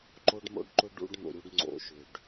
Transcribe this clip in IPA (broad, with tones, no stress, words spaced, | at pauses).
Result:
ǃo˦ɖmo̰˦ɖǃʊ˦ ɖṵ˦ɖn̪o̰˨ɾʲu˦ɖ ŋ͡ǀo̰˨ʃʏ˨ɖ